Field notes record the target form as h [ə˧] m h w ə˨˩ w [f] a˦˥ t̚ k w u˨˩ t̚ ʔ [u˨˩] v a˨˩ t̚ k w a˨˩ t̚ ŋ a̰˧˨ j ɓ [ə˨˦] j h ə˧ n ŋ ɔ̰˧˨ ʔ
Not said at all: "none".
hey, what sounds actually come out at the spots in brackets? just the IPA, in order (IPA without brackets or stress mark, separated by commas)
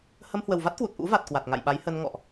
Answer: ə˧, v, ṵ˧˥, a˨˦